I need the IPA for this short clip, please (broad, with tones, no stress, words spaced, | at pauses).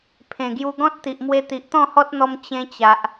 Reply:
pʰẽ˨˩ɡju˧ ɡɔ̃˦t̚t̪i˨ʔmwe˧ t̪i˨ʔt̪ɔ̃˥˧hɔ˦t̚n̪ɔ˧m t͡ɕẽ˧t͡ɕa˨ʔ